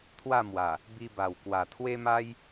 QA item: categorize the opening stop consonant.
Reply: aspirated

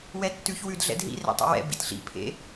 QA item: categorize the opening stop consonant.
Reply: plain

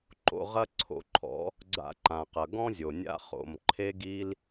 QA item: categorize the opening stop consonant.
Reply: click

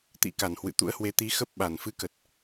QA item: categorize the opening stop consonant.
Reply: plain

